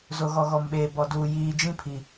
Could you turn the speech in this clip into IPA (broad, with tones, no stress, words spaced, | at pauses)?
zo˨ɣɔ˨ɣɔ˨mɓeː˨ bɔ˨duː˨ jiː˨d͡ʒĩ˦pʰi˨